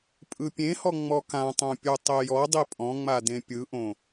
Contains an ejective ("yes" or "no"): yes